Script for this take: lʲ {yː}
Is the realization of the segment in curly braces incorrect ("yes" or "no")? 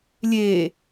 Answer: yes